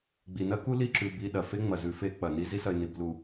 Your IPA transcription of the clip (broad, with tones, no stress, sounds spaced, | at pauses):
ɡ͡b i˨ n ɐ˦ k u˦ l i˦ ǁ ʉ˨ b i˨ ɗ ɐ˨ f e˦ ŋ͡m ɐ˨ z ʉ˨ f e˦ k͡p ɐ˨ n i˦ z i˦ s ɐ˨ ɪ̯ n i˨ b l u˨